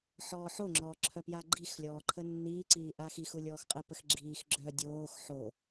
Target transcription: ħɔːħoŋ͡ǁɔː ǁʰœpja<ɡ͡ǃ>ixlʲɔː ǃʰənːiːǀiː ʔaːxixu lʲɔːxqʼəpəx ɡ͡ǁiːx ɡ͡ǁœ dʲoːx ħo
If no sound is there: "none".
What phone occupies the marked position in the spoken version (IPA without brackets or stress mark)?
ɡ͡ǃ